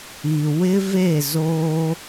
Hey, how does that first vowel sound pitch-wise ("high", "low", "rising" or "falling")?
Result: low